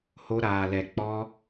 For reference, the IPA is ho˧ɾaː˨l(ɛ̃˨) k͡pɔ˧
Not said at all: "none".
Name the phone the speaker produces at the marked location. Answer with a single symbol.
ɛ˨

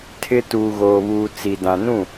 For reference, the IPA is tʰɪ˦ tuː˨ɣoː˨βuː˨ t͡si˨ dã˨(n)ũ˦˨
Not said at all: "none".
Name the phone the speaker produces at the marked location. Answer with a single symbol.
n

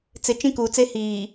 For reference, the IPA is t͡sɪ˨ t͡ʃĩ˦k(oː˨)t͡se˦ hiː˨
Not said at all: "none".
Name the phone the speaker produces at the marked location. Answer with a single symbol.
uː˨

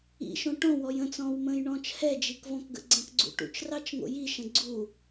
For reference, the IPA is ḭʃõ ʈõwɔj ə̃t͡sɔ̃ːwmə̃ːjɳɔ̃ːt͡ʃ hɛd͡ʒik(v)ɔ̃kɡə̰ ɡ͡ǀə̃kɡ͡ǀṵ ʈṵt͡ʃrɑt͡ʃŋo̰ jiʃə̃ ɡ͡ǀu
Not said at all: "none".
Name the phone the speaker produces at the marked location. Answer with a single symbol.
v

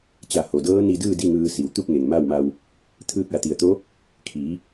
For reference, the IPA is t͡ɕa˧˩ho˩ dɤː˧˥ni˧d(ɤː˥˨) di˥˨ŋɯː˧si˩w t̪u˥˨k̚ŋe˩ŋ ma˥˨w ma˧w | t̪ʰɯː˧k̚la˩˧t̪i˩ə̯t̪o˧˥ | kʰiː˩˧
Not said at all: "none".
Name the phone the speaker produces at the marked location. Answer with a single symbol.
ɯː˥˨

